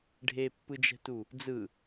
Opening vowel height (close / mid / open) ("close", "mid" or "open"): mid